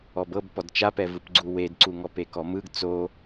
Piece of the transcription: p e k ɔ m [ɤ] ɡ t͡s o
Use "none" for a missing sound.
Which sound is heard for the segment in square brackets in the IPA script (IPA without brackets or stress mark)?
ɯ